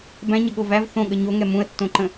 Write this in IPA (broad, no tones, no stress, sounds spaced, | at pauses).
b æ̃ ɲ ə ɠ o v æ v θ õ ɠ ə ɲ o ŋ ɛ m ũ ə̯ tː õ ǃ ə̃